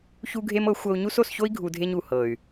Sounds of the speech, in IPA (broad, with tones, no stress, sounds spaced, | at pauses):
ç u˦ ɡʱ e˦ m ɤ˨˦ xʷ ɤ˧ u̯ ɲ u˦ s o˦˨ s ç o˦ i̯ ɡʱ u˧ dʱ e˦ ɲ u˨ h ɤ˨ y̯